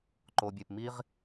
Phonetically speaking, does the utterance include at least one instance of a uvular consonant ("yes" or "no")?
yes